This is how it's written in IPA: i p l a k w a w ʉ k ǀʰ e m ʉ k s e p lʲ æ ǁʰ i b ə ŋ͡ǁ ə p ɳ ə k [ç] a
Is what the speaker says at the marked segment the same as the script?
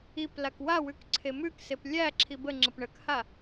no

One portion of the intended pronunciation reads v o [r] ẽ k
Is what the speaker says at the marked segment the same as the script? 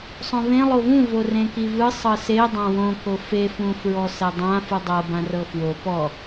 yes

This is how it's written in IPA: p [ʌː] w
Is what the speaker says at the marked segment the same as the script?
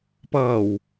yes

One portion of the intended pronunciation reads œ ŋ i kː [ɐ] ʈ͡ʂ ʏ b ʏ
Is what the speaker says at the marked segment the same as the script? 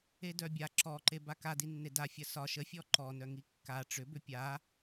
no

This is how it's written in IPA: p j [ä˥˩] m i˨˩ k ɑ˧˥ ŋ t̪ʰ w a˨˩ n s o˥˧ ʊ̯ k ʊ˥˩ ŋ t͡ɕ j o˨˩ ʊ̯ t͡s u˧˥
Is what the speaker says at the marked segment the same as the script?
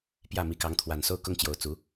yes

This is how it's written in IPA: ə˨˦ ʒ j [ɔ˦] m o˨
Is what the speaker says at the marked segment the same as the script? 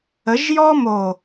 yes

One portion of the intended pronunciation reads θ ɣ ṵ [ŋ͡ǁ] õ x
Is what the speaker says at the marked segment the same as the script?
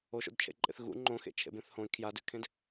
no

